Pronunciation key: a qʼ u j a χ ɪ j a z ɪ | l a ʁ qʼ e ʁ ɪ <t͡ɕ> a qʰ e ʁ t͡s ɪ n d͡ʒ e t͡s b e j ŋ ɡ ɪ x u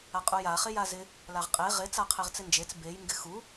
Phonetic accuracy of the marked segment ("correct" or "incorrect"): incorrect